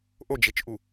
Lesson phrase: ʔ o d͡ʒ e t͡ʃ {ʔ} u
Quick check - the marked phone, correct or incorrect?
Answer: correct